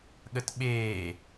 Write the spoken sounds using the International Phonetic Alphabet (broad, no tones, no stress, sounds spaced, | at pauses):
ɠ ə t ɓ eː